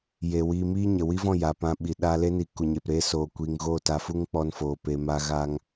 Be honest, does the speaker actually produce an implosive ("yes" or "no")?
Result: yes